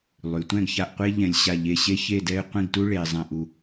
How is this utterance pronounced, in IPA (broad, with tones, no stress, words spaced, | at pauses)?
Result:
lˠy˩˧tʷɛ̃˥˧ɡça˧ʔqʷe˥ ʎɛ̃˧lʲ ɕa˧˩ʎe˧˩ ɕe˥çe˥˧dɛ˥˧ɪ̯ qʷĩ˥˧ɡtu˥ ɭe˧zˤɛ̃˧ʔu˧